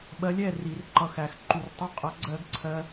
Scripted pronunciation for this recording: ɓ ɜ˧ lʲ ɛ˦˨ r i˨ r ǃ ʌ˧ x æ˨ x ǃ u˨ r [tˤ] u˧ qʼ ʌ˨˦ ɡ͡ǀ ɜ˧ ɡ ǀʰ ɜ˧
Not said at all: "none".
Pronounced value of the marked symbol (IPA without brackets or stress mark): tˤ